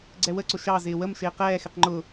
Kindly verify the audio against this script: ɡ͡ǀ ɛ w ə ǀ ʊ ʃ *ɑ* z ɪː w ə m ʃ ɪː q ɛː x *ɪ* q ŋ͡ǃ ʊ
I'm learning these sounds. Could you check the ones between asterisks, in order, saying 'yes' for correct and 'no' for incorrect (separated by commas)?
yes, yes